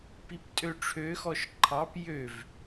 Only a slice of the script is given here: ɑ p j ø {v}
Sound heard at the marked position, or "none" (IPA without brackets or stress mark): v